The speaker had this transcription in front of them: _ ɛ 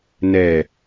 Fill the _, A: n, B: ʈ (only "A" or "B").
A